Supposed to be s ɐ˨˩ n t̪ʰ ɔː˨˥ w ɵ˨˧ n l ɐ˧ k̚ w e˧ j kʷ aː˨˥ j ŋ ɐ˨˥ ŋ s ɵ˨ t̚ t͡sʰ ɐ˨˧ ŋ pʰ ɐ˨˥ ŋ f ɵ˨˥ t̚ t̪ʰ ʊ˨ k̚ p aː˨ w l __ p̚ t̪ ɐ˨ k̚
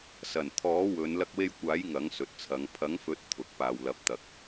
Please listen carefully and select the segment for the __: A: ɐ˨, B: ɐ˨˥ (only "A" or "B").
B